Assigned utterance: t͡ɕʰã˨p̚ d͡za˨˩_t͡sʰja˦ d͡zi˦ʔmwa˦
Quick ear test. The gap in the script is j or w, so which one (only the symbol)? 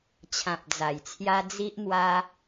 j